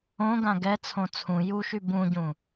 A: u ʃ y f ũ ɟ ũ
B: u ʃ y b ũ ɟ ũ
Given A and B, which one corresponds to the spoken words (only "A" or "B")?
B